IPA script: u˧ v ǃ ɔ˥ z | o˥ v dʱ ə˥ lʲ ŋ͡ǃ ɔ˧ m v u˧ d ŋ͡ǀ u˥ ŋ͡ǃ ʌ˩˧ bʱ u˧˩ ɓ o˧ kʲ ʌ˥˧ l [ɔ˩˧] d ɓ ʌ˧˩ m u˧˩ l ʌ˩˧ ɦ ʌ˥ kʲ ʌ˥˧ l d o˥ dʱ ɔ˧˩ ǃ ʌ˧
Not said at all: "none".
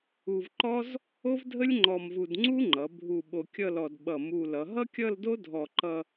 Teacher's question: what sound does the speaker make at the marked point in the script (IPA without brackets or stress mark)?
ɔ˧